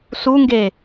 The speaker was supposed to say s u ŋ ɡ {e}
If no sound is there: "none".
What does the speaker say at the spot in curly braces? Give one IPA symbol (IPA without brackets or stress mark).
e